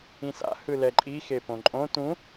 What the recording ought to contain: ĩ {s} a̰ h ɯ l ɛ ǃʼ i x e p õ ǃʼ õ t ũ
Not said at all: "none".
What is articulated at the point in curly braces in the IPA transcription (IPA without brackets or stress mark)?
s